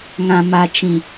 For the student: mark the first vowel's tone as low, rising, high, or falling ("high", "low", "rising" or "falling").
low